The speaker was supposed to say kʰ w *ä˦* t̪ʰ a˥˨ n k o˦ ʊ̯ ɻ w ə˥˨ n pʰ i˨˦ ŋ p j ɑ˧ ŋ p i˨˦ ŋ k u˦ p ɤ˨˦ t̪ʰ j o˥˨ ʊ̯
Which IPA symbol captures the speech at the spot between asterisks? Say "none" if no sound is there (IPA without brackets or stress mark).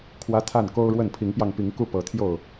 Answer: ä˦